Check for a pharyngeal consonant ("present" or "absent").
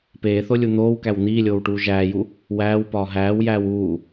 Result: absent